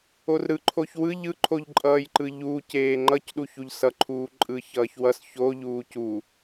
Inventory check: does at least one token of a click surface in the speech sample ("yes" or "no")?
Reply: yes